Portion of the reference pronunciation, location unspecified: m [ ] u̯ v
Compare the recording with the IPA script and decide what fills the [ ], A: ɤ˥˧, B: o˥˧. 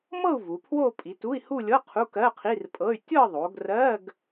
A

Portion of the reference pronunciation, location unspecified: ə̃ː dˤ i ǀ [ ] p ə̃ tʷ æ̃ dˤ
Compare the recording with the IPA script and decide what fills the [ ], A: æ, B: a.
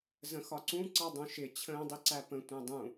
A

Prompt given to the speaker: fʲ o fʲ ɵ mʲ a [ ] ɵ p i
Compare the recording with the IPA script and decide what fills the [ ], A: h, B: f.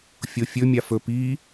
B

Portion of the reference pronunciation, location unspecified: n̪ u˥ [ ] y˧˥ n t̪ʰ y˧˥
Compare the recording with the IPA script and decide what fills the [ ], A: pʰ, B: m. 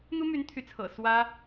B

